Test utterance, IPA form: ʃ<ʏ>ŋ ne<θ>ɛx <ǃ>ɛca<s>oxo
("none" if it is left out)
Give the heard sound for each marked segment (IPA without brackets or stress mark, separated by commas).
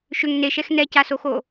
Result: ʏ, ʃ, n, s